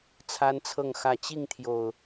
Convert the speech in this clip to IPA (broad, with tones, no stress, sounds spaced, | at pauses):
t͡sʰ a˦ n t͡sʰ ɤ˥˨ ŋ x ä˥˨ t͡ɕ i˥˨ ŋ t̪ʰ j o˨˩ ʊ̯